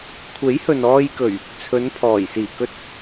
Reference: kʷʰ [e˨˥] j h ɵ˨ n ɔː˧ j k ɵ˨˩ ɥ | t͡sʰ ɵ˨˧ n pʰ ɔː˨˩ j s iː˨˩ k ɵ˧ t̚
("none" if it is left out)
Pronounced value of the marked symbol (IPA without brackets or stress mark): e˨˥